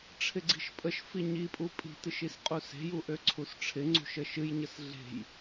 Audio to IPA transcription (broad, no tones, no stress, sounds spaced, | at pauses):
ʈ͡ʂʰ ɪ ɡ͡ǀ i̤ ʃ pʼ ə ʃ f i ɲ i pʼ u pʼ i̤ t ɨ ʃ i s qʼ u s e̤ j u ʔ ø ǀʰ u s ʈ͡ʂʰ ɪ ŋ͡ǀ ṳ ʃ ə ʃ ɨ j ɲ ə s ɮ e̤ j